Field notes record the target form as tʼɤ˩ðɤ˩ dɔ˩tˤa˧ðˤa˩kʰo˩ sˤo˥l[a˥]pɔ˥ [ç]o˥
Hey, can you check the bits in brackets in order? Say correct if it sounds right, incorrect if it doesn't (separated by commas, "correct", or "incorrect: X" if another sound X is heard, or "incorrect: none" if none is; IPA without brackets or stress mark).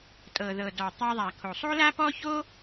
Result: correct, correct